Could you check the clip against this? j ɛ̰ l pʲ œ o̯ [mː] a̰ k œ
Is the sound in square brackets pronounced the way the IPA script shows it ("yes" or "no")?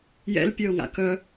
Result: no